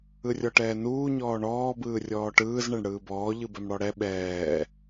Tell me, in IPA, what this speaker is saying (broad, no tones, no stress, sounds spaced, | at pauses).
ɯ rʲ ɔ ʈ ɛː n uː ɲ ɔː ɳ ɔː b ɯː rʲ ɔː ʈ ɯː z ɳ ɛ ɳ ɽ ɯː b ɔː ʎ ɯ b ɛ m ɽ ɔ ɽ ɛ ɓ ɛː